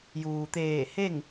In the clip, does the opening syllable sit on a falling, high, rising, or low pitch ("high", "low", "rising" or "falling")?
low